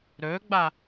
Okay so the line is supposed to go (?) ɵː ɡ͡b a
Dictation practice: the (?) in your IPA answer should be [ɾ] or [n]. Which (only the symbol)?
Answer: ɾ